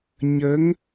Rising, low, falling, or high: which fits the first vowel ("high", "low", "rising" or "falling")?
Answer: rising